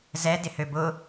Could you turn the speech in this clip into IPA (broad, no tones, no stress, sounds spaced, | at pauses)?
z ɛ d ɪ h ø b ʊ